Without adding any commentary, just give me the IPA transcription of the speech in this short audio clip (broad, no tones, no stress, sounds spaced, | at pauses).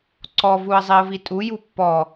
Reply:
ǀ ɔ v u ə̯ zˤ i ə̯ v i tʼ u j u pː ɔ